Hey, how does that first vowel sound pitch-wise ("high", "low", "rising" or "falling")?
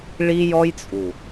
high